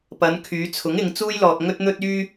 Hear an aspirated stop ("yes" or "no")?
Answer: yes